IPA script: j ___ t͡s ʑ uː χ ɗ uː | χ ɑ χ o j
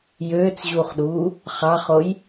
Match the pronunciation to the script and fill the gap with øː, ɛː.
øː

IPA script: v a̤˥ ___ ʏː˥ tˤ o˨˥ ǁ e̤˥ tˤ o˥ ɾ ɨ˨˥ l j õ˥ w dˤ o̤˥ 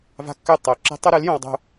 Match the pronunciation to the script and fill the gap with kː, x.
kː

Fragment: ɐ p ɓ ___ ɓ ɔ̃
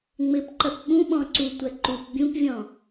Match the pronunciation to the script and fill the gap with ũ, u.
ũ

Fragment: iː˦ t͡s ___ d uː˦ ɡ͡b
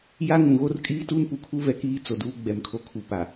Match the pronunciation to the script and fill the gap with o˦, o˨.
o˨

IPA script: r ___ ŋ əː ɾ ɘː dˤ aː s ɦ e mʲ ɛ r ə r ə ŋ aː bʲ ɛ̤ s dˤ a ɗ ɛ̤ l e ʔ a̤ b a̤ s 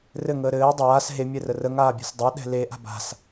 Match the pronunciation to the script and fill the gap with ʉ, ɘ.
ɘ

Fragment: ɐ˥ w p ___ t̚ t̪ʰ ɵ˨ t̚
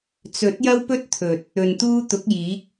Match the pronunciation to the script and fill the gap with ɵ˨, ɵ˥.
ɵ˥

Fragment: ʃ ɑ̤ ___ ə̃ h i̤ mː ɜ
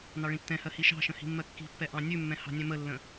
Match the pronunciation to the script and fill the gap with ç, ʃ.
ʃ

